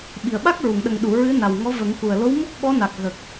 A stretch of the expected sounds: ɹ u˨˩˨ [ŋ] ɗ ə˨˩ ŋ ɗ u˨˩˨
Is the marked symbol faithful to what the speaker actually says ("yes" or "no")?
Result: yes